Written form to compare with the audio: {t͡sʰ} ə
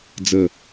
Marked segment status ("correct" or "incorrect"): incorrect